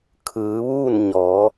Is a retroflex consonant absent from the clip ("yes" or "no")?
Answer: yes